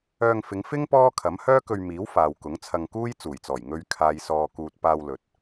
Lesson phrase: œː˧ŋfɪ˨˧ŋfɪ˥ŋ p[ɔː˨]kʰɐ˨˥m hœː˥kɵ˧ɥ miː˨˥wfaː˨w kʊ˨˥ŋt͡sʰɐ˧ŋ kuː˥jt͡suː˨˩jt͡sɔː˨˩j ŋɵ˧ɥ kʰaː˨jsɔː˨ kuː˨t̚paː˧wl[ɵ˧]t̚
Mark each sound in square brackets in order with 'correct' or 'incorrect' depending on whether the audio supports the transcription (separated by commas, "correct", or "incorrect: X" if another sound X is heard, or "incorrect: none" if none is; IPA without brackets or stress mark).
incorrect: ɔː˥, incorrect: ɵ˨